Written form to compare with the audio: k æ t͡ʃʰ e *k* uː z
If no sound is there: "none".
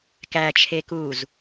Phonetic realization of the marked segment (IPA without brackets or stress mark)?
k